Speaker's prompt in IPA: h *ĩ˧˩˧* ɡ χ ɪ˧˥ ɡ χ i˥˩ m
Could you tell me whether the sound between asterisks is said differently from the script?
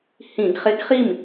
no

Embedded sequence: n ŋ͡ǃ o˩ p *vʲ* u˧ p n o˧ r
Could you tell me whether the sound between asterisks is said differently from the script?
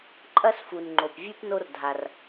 no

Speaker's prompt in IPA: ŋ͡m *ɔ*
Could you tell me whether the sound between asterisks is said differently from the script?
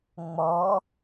no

